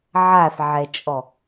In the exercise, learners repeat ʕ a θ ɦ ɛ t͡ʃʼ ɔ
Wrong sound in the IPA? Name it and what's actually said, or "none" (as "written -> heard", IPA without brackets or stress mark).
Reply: ɦ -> ʕ